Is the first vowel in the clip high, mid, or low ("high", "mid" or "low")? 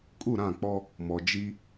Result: high